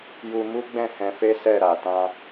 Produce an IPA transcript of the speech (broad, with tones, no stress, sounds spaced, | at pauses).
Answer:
j u˧ m u˦ ɡ͡b ɛ̃˦˨ h ɛ̃˧ f e˦ s ɛ˦˨ ɾ a˨ t ã˧